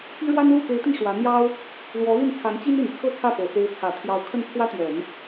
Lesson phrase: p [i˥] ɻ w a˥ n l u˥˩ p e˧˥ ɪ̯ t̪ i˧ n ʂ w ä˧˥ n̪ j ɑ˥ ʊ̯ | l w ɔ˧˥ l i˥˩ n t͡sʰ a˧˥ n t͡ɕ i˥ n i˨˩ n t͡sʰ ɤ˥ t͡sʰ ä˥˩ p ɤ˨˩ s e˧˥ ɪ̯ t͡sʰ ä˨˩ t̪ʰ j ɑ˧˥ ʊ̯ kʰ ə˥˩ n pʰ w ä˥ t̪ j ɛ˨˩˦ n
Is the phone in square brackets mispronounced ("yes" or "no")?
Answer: no